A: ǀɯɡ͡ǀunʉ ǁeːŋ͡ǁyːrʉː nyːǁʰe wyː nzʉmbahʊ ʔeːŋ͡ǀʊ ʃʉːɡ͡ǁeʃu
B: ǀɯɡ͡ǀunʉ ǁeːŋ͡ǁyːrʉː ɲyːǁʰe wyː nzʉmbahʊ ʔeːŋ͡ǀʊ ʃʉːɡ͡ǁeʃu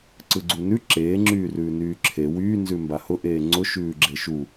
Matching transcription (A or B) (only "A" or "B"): A